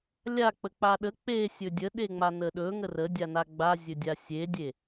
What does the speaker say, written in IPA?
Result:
lʲ a k͡p ə k͡p a ɗ ə k͡p e sʲ ɵ dʲ ə ɗ e ŋ͡m a n ə ɗ ɵ ŋ ə r ə dʲ a n a ɡ͡b a zʲ ɵ dʲ a sʲ e dʲ e

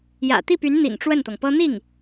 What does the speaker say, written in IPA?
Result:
j ä̰˨˩ t̪ i˥˩ p y˧˥ n n̪ ḭ˨˩ ŋ ʈ͡ʂ w ə˥˩ n t̪ ɤ˩ ŋ p ɤ˥ n̪ i˥˩ ŋ

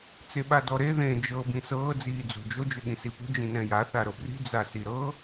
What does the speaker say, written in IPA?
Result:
t͡s e ɓ a d ɔ ɾ e ð ẽ d͡ʒ ɤ b ĩ s ɤː d͡z iː d͡z o̤ d͡ʒ o d͡ʒ ɵ ɠ ĩ s i p o̤ d͡ʒ ĩ n ɛ̃ j a θ a ɾ ɤ b r i̤ d͡z a s i ɾ ɤ

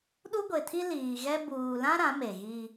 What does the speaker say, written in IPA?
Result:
ɗ u˦ ɡʷ e˨ tʰ i˦ l iː˨ ɣ ɛ˦ b uː˨ l ã˦ ɾ ã˨˦ m e˨ ɣ i˦

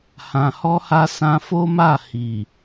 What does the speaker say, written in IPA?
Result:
h ã˨ h ɔ˧ h a˧ s ã˧ f o˦ m a˦˨ h i˨

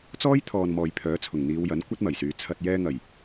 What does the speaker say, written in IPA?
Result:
t͡s ɔː˥ j t̪ʰ ɔː˨ n m ɔː˨ j pʰ œː˨˥ t͡sʰ ʊ˨˩ ŋ n̪ iː˨˧ w j ɐ˨˥ n kʷ ɐ˥ t̚ m ɐ˨˩ j s yː˨ t͡sʰ ɐ˨ t̚ j ɛː˧ ŋ ɐ˨˩ j

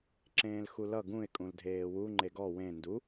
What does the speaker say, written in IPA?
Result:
ǁ ẽː l x u l ʌ ɡ ũ ɪ̯ kʼ ũ l dʱ eː w u ŋ͡ǃ e ɡ ɔ w ẽ n d u

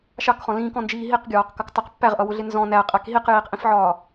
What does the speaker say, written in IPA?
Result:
ʃ ɑ k χ ɔ̃ l ĩː k ɔ̃ n d͡ʒ iː ɦ i q ɡʲ ɒː q k ʌ k tˤ ɪ q pː æ ʁ ʔ ʌ w ʊ ɮ ɪ n z ɔ̃ n æ qʼ æ k ɦ i q j iː q ʔ ĩ f ʕ ɒː

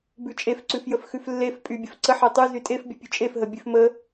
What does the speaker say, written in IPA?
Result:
b ʉ t͡ʃʼ e f ǀ ʉ f j ə f x ʉ f lː e f pʼ y bʲ ə f ǀ ə ħ e tˤ ʉ z y tʼ e f bʲ ə pʲ ʉ t͡ʃʼ e f ɦ ə bʲ ʉ f m ə

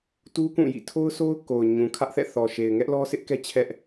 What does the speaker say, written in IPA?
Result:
t u˦ k ũ˦˨ j ḭ˦˨ tʰ o˦ ʊ̯ sʰ o˦ ʊ̯ k o˨ ʊ̯ ɲ ũ˨ kʰ ä˦ ʔ θ ɛ̰˦˨ θ ɔ˨ ʃ e˨ ɪ̯ ŋ ɛ˦ ʔ l ɔ˦ sʰ ɪ˦ ʔ k ɛ˦ t͡ɕʰ ɛ˦ ʔ

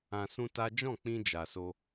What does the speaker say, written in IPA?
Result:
ã˧ s ũ˦ t a˦ d͡ʒ ɔ̃˦˨ k͡p ĩ˧ d͡ʒ a˨ s o˧

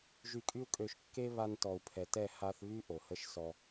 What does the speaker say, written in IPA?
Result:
ʒ y˧ kʼ y˦ u̯ kʼ ø˧ ʃ kː e˦ β a˧ n t ɔ˨ u̯ pʰ ɛ˨ t ɛ˦˨ h a˧ θ β y˦ ʔ o˨ h ə˦ ʃ s ɔ˧

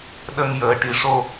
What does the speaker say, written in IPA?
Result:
ɗ ə˧ ŋ j əː˨˩ ʈ i˨˩ ʂ o˧

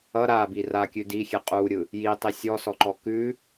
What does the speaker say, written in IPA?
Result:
ʌ ɾ a b i r a kʲ ʉ d i xʲ ɛ qʼ u ɾʲ ɯ | j i tˤ i sʲ ɔ s ɔ ǃ ɔ k ʉ

